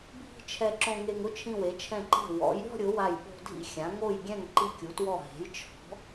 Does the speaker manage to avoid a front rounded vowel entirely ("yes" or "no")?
yes